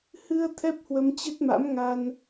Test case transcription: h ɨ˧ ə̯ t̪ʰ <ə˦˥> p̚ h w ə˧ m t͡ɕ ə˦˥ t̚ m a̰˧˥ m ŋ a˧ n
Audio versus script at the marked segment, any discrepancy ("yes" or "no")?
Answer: yes